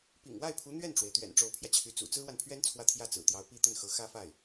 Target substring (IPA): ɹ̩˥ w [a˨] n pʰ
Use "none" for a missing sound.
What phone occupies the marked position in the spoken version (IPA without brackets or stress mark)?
a˨